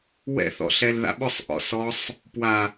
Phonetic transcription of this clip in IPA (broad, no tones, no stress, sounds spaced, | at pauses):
w ɛ̰ θ ɔ̰ ɬ ɛ l ð a̰ ɓ ʊ sˤ ʔ ɔ̰ s ɔ sˤ | p w a